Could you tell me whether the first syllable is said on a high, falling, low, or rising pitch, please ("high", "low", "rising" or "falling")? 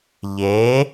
rising